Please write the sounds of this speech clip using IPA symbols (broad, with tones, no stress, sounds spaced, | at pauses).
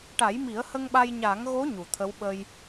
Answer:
ʈ a˨˩˦ j m i˨˩˦ ə̯ h ə˧ ŋ ɓ a˧ j ɲ a˨˩˦ ŋ ɣ o˧˥ ɲ u˨˩˨ t̪ʰ ə˧˥ w ɓ ə˧ j